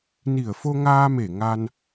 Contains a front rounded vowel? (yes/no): no